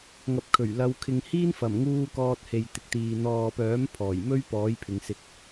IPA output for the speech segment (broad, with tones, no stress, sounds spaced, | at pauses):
ŋ ɐ˨ p̚ kʰ ɵ˨˩ ɥ l ɐ˨˧ w kʰ ɪ˨ ŋ h iː˥ n f ɐ˨˩ m ŋ uː˧ k ɔː˧ t̚ h e˨ j t̪ ɪ˨ k̚ t̪ iː˨ n̪ ɔː˨ p œː˨˥ m pʰ ɔː˨˩ j m ɵ˥ ɥ p ɔː˨˥ j pʰ ɪ˨˧ ŋ s ɪ˧ k̚